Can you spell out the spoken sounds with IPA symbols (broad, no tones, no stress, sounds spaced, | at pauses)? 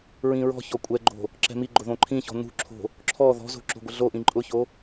ɹ ĩ ɹ ɔ̤ ç ɔ kʷʼ ɛ ɡ͡ǃ o̤ | ǁ ɛ̤ m i ɡ͡ǃ ʊ ð õ ǃʰ ĩ ç ɔ̤ n ṳ ǁʰ o̤ | ǁʰ ɔ ð ɔ̤ z o̤ ǁ o̤ ɡʷ ɪ ɮ o ʔ ĩ ǃʼ ʊ ç o